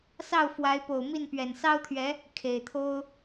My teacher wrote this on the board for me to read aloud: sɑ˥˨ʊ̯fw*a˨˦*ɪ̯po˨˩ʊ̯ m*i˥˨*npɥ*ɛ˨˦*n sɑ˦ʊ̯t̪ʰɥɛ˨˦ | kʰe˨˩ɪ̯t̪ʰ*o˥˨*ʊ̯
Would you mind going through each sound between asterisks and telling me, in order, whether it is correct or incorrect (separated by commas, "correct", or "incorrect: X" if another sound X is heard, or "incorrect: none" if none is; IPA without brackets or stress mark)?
correct, correct, incorrect: ɛ˨˩, incorrect: o˦